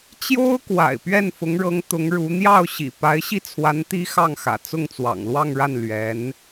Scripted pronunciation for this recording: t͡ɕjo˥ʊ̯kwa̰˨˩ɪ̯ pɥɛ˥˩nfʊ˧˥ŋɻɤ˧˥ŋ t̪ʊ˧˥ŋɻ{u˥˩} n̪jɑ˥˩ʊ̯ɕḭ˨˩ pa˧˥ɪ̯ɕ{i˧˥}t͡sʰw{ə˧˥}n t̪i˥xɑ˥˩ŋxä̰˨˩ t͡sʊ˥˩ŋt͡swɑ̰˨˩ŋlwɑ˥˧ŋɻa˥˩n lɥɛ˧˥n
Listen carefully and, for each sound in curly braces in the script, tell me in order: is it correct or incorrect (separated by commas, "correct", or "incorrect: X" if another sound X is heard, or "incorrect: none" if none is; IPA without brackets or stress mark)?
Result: incorrect: u˧˥, incorrect: i˥˩, incorrect: a˧˥